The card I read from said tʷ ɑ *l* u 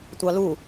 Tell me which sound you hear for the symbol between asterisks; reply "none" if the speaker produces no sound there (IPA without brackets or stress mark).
l